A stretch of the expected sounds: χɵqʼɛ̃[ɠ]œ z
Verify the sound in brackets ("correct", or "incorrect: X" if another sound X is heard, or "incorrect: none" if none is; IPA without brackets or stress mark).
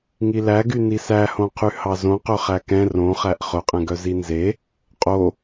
incorrect: ɡ